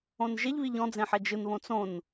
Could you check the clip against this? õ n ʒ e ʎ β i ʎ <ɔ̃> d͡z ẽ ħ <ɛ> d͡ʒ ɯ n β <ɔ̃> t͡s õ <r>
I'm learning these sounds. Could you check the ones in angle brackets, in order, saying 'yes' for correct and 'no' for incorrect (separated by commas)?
yes, yes, no, no